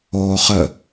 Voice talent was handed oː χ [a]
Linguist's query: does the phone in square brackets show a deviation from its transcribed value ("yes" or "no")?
yes